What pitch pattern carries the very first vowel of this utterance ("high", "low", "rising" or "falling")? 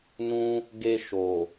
high